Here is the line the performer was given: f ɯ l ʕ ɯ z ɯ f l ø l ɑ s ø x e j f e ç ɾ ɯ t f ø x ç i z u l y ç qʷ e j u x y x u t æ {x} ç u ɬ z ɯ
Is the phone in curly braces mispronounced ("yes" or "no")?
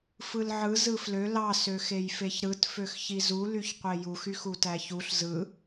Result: yes